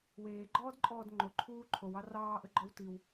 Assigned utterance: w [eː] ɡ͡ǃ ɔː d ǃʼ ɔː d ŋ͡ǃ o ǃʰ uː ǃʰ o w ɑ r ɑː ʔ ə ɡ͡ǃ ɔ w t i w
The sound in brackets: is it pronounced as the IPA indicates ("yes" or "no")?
yes